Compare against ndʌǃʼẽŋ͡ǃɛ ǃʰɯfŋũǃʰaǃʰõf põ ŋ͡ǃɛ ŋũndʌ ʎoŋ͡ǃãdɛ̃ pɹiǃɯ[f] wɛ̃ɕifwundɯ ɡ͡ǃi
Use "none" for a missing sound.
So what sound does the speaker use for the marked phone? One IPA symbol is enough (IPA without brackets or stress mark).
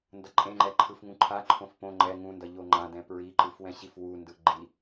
f